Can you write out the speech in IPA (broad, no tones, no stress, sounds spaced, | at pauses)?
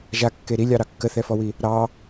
ʒ a kː e ɾ i lʲ ɑ ɾ ɑ kː ə θ ɛ f ɔ w i | ɾ ɑ